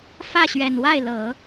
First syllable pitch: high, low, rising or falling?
falling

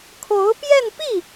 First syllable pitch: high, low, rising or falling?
rising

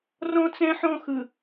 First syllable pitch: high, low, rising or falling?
high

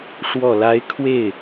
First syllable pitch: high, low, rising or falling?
low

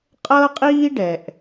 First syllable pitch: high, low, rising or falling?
high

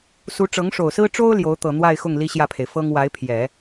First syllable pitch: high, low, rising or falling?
rising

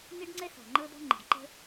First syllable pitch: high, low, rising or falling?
high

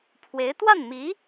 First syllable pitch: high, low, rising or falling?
rising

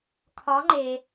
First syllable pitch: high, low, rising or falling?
rising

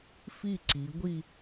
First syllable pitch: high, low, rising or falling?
falling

